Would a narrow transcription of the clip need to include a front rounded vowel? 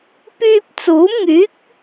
yes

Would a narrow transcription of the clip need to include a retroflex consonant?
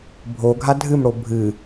yes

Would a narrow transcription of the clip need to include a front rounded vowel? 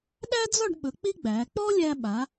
no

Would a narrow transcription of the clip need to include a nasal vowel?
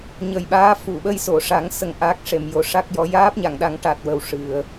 no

